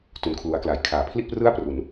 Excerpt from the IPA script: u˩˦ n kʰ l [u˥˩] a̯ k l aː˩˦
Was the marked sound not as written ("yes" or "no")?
yes